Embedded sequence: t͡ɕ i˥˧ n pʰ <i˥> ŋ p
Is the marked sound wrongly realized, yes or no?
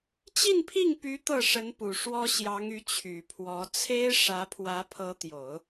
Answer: yes